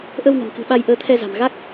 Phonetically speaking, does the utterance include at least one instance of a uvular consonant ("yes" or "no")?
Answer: no